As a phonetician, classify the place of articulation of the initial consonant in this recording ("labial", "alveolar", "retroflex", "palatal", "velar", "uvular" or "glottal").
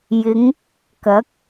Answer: palatal